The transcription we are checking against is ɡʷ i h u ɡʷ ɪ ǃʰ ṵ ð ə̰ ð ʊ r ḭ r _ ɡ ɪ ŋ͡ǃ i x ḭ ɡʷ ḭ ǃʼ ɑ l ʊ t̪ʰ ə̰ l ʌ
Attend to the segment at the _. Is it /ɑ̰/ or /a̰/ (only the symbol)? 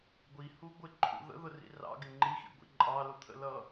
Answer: ɑ̰